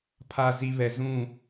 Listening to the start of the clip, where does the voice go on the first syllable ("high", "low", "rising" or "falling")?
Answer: low